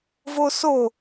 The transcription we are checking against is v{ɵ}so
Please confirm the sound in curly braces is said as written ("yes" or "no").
no